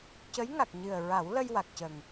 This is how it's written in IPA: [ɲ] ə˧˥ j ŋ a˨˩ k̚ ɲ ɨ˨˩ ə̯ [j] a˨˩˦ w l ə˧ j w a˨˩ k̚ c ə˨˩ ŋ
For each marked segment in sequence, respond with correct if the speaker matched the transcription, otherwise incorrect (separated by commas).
incorrect, incorrect